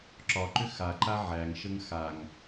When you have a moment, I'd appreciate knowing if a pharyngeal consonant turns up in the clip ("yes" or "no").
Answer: yes